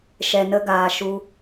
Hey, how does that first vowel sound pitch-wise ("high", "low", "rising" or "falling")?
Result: low